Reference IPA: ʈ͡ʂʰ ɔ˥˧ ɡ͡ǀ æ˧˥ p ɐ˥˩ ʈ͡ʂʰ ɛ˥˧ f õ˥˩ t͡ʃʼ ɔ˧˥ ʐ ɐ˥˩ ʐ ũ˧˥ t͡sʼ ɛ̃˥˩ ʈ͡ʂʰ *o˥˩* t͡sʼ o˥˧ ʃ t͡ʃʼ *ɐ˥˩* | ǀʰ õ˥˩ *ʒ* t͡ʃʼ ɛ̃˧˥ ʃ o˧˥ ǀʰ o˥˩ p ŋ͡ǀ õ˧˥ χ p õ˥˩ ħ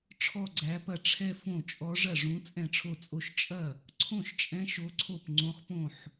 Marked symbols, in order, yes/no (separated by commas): yes, yes, no